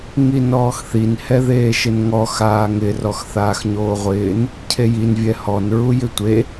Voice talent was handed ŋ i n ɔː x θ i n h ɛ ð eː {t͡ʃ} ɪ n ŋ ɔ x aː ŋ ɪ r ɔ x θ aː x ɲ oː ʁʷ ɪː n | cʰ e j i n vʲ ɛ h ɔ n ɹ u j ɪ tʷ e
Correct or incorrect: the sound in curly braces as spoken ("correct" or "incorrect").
incorrect